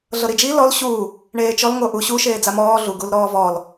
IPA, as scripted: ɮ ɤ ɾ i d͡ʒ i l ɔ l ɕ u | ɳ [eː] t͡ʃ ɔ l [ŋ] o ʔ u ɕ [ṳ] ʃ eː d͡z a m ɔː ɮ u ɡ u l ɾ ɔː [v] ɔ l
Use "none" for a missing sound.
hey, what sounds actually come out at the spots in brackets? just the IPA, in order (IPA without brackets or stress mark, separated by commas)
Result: eː, ŋ, u, v